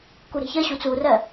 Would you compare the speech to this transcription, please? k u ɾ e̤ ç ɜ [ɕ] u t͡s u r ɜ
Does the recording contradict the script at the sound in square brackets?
no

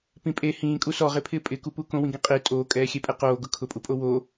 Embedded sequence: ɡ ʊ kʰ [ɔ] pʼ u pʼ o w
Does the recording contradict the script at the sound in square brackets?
yes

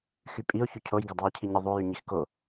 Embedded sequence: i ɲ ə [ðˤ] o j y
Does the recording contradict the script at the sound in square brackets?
no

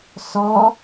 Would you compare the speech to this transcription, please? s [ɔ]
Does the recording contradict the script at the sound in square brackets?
no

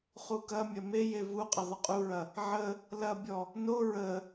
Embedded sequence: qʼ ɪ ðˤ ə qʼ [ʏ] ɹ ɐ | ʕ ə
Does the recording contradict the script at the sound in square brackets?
yes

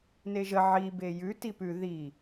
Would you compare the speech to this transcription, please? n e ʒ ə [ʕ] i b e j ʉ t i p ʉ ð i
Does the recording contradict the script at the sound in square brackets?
no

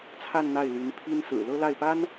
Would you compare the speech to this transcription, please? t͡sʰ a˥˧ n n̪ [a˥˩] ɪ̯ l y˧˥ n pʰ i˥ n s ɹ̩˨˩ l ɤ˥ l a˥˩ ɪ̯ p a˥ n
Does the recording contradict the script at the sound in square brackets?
no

